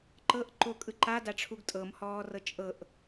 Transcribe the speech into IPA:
ǃ ɤ ʔ ǃ o kʼ ɯ ǃ a d a ʈ͡ʂʰ u ɡ tʼ ɤ m h ɔː r ɤ t͡ʃʼ ɤ ʔ

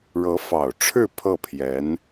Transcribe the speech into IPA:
ɻ ɤ˧˥ f ɑ˨˩ ʊ̯ ʈ͡ʂʰ ɻ̩˥˧ pʰ ɤ˥˩ pʰ j ɛ˧˥ n

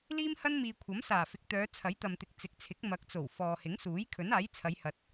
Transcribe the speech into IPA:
l iː˥ m h ɐ˥ n m iː˨ kʷʰ ɐ˨˥ m s aː˨˩ f ɪ˨˥ k̚ t̪ œː˨˧ t͡sʰ ɐ˨˥ j t̪ ɐ˨ m t̪ ɪ˨ k̚ t͡s ɪ˨ k̚ t͡sʰ ɪ˨˥ k̚ m ɐ˨˥ k̚ t͡s o˨˩ w f ɔː˨ h ɪ˨˥ ŋ s uː˨˥ j kʰ ɵ˨˥ n aː˨˥ j t͡sʰ ɐ˨˧ j h ɐ˨ t̚

